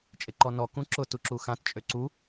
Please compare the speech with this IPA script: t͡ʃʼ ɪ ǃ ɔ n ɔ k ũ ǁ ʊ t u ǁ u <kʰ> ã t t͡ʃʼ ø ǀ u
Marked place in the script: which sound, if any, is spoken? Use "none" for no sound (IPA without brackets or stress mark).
x